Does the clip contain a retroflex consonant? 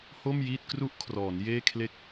no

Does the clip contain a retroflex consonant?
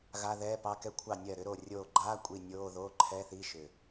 no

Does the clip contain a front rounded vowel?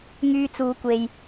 yes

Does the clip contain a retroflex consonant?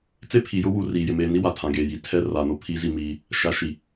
no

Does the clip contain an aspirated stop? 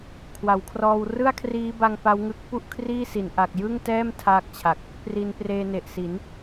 yes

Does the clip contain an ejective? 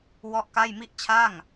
no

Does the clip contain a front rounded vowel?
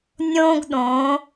no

